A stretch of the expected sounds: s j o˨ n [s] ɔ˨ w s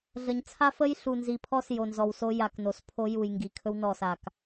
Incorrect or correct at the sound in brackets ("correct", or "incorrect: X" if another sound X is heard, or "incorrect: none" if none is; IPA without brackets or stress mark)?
incorrect: z